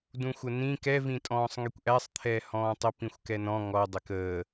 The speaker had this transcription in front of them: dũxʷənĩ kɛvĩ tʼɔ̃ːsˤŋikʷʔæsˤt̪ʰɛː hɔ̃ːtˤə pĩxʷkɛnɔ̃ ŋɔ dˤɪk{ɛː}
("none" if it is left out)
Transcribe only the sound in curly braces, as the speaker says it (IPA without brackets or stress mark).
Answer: əː